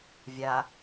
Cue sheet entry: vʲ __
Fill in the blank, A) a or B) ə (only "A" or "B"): A